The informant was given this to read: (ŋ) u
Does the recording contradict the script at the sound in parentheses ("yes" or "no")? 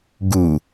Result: yes